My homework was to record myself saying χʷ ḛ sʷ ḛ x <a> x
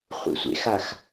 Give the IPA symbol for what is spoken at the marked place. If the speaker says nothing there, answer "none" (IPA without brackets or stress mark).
a